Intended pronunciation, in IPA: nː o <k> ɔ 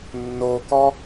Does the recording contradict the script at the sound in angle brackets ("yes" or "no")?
no